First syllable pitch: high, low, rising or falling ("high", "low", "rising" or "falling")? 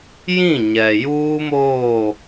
falling